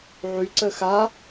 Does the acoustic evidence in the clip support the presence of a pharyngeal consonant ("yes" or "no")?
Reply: yes